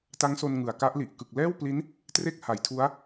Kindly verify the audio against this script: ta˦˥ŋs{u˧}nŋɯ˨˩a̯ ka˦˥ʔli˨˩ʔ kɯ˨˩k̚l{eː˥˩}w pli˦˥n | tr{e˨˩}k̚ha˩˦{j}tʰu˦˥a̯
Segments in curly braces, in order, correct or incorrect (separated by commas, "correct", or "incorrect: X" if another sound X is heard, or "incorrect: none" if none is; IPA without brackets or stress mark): incorrect: o˧, incorrect: ɛː˥˩, incorrect: e˥˩, correct